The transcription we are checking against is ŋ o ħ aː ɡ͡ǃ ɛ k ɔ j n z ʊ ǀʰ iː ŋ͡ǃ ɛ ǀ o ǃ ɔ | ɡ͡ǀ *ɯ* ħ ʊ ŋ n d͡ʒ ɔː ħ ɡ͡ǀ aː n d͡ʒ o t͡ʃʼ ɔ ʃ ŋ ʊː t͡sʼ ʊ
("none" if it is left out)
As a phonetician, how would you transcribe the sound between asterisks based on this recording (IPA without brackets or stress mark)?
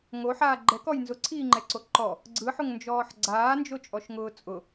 ɯ